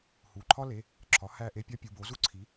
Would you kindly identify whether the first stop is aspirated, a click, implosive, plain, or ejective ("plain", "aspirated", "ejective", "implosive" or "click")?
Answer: click